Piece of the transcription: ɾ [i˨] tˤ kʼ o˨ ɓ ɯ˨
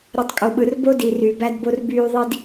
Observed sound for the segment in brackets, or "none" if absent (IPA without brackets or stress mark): i˨